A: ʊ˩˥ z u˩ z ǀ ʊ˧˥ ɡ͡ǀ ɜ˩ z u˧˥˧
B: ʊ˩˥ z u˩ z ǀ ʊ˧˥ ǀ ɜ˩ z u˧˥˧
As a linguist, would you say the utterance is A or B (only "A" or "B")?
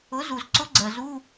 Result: A